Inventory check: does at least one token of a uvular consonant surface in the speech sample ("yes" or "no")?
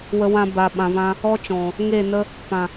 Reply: no